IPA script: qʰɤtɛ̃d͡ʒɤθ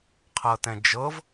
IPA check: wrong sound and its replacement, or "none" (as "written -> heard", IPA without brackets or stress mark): θ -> v